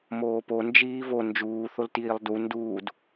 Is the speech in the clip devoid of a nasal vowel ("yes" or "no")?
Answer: yes